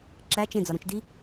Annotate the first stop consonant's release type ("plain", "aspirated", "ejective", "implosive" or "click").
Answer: click